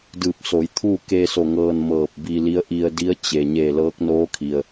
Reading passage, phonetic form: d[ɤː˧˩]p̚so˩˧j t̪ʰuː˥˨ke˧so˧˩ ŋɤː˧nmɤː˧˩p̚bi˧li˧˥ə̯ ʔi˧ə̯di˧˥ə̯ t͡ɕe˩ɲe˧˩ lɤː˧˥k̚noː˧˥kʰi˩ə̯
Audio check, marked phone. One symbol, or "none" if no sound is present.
ɯː˧˩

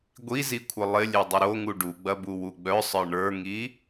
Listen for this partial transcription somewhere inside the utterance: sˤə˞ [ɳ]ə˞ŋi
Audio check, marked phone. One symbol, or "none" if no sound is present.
ɳ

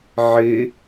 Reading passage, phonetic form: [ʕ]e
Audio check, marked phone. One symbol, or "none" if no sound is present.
ʕ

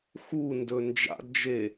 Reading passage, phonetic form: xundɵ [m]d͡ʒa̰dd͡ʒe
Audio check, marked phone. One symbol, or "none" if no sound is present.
n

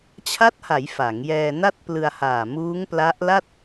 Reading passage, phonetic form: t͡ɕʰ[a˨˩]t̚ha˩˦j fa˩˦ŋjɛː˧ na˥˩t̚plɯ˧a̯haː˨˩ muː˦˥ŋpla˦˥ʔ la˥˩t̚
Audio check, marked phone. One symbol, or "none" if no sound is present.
a˦˥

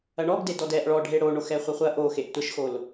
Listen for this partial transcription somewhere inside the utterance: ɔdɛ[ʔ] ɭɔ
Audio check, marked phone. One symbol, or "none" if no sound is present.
ʔ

